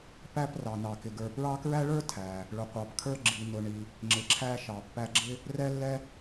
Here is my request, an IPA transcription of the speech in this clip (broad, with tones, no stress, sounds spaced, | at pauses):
p æ˦ p r ɑ˩ n ɑ˩ k ɪ˩ ɡ ə˞˨ p ɹ ɑ˦ k ɹ æ˥ ɭ ə˞˥ tʰ æ˩ | ɭ ʊ˨ qʷ ɑ˨ p kʰ ə˞˥ ɡ͡ǁ i˨ n ʊ˨ ɳ i˨ | ŋ͡ǁ ɪ˨ ǁʰ æ˦ ʃ ɑ˨ pː æ˦ ɡ͡ǁ ɪ˥ | r ɛ˦ lː ɛ˦